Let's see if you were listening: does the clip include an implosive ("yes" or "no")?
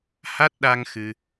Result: yes